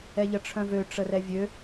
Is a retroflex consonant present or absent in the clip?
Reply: present